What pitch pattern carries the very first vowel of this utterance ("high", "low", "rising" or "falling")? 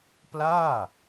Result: falling